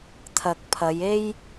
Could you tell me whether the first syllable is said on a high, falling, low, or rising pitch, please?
low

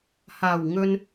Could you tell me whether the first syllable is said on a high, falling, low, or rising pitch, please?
low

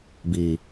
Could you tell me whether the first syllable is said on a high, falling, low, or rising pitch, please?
low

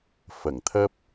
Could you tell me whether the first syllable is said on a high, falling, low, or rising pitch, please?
low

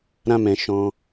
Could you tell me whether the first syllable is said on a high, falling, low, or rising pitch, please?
high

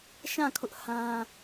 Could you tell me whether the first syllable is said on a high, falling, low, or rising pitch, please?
falling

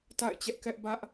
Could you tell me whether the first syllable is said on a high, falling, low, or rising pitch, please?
falling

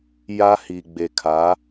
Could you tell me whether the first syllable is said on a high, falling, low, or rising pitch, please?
high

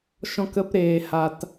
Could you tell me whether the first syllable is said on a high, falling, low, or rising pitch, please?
high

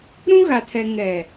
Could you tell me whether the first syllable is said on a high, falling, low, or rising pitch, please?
high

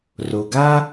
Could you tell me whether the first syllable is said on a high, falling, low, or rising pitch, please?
low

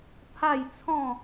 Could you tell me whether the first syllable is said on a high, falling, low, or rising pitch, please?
falling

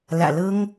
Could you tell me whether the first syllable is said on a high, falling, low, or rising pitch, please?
low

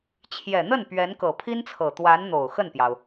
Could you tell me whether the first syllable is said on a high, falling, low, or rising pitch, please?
low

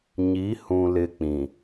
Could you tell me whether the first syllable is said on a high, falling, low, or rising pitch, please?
rising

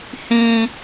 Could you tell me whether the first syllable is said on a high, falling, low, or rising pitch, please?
high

